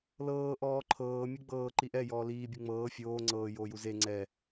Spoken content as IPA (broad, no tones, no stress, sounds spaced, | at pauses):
l ɤː ʔ ɔː ǃʰ ɤː mʲ ɯ ɡ͡b ɤː ǃ i ʔ ɛ j ɔː l iː bʲ u ŋ͡m ɤː fʲ oː ŋ͡ǀ ɤː j oː j u z e ŋ͡ǀ ɛ